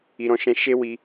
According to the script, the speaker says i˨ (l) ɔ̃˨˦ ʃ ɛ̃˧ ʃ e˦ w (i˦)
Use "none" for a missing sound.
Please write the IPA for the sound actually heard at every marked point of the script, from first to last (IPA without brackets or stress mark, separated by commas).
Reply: ɾ, i˧